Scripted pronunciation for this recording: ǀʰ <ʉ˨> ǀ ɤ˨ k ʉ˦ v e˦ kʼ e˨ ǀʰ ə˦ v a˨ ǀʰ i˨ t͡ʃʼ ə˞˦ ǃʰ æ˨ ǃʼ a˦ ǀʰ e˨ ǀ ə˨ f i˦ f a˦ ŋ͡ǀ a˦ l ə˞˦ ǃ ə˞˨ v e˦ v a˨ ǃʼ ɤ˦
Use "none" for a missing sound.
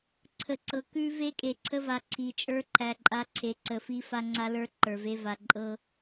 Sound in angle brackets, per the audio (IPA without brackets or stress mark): ə˨